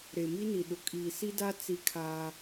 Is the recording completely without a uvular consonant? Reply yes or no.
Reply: yes